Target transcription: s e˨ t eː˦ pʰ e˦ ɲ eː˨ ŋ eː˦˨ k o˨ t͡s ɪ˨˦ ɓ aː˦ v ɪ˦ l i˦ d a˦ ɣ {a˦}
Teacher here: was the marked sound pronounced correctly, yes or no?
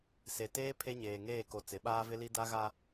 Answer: yes